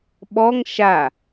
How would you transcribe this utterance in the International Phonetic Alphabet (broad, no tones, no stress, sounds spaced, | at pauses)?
ɓ ɔ ŋ ʃ a